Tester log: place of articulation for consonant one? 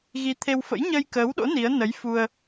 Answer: velar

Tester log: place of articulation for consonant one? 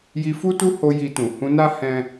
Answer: palatal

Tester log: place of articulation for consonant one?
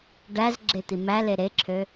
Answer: retroflex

